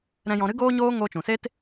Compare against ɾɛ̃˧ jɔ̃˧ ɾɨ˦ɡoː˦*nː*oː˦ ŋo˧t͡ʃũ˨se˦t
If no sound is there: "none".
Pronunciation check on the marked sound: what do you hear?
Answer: ɲ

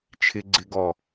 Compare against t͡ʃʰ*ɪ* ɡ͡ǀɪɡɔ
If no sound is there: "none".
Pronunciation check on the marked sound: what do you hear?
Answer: ɪ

